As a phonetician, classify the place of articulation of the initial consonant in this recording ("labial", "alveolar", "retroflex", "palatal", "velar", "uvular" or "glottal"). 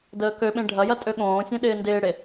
alveolar